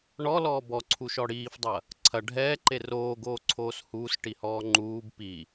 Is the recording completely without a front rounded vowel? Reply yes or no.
yes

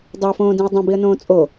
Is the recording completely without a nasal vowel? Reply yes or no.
no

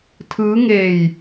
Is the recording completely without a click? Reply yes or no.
yes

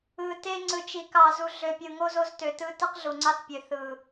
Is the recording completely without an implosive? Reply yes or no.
yes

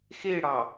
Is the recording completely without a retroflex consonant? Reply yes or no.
no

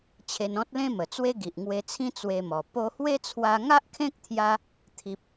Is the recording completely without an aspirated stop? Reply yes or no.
no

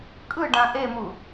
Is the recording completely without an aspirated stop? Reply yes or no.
yes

